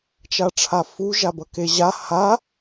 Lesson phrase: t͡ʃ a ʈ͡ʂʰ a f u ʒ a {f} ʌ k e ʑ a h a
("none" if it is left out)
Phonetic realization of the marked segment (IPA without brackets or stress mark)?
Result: b